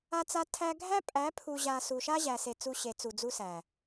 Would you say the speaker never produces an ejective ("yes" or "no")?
no